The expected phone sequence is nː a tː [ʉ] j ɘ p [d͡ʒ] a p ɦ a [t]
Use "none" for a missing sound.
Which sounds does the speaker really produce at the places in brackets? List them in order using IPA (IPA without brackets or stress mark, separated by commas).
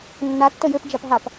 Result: ə, d͡ʒ, p